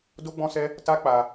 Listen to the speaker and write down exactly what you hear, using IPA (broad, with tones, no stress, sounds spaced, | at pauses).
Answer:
d o˦ ɡ͡b ɔ̃˦ s ɛ˦ | t a˦ k͡p a˧